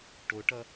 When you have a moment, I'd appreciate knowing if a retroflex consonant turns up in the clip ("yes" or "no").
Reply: yes